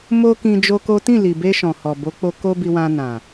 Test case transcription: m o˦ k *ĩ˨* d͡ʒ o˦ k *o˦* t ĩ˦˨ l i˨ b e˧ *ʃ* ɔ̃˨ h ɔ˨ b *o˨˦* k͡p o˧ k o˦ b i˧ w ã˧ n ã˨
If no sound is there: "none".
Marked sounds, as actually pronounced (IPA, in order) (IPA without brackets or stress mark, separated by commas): ĩ˧, o˦, ʃ, o˨˦